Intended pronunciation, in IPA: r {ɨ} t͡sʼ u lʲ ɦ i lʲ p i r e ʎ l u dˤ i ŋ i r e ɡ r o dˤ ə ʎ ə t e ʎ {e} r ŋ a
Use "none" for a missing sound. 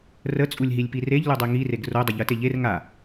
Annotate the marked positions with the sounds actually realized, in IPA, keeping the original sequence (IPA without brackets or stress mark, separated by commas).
ə, e